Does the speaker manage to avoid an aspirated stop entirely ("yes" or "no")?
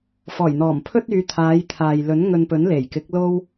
no